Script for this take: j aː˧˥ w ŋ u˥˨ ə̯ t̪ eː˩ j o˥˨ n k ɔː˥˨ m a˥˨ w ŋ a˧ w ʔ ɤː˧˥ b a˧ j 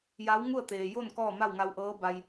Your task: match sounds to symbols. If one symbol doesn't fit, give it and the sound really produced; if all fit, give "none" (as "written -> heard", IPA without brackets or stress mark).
aː˧˥ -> a˧˥